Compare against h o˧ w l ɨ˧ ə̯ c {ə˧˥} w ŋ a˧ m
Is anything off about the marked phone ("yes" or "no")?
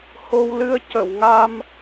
yes